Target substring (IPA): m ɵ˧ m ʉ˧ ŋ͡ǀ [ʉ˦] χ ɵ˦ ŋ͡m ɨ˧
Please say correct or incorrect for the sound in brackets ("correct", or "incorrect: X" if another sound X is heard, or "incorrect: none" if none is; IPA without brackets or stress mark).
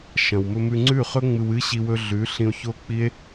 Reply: incorrect: ʉ˦˨